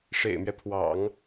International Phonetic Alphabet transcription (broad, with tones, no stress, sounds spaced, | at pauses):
ʂ ḛ˨˩ ɪ̯ m ɥ ɛ˦ pʰ w ɑ̰˨˩˦ ŋ